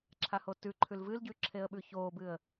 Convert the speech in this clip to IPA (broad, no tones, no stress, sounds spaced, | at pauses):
ǁʰ a h o t ʉ ǃʰ ʉ l v ɨ l ɟ ʉ ǁʰ e ə̯ ɓ ʉ ç oː b ɨ ə̯